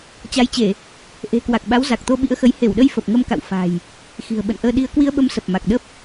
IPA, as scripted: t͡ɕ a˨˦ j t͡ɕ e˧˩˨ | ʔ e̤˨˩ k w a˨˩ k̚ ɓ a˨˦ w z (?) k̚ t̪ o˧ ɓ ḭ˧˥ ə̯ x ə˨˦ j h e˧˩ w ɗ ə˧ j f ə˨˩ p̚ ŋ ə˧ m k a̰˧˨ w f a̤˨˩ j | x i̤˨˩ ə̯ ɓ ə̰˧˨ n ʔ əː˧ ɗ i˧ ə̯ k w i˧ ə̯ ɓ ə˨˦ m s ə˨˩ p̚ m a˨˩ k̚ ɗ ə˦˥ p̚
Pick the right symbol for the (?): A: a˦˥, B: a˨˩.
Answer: B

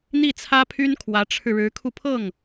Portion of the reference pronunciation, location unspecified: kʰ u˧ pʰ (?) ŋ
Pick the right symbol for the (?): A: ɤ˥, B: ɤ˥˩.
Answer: B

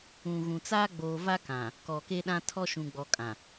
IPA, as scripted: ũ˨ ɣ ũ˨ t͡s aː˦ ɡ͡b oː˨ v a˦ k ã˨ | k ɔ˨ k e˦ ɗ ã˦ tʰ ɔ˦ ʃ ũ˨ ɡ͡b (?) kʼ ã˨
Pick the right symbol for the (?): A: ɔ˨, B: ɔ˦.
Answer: A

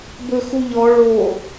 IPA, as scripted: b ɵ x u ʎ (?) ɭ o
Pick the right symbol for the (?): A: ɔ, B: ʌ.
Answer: A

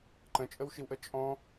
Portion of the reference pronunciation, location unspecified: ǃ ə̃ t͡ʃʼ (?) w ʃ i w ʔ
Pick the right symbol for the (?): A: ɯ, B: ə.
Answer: B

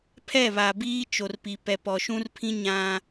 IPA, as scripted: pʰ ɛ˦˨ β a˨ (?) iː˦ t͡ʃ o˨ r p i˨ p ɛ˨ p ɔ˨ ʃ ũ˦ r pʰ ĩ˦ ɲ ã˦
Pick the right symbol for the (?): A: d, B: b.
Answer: B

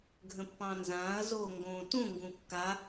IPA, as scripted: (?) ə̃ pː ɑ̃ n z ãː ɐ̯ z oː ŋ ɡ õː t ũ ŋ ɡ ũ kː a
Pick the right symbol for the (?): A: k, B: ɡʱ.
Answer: B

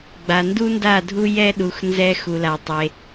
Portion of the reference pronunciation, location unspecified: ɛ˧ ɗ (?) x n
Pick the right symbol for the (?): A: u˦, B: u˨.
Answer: B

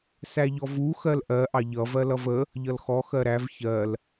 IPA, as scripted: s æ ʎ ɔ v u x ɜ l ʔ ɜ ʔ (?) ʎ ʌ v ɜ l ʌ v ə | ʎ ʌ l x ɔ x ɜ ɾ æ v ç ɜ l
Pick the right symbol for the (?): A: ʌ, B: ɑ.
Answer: B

